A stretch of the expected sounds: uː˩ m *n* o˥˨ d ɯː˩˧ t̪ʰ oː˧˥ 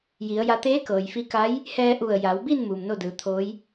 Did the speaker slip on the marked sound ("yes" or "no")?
no